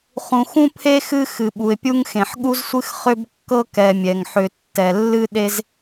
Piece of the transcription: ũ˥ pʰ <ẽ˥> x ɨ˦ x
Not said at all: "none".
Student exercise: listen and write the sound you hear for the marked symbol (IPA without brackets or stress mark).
e˥